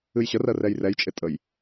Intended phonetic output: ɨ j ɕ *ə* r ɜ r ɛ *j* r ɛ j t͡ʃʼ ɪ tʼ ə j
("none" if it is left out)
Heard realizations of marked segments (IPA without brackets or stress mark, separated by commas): ə, j